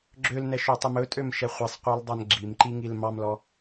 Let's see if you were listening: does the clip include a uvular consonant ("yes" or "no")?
yes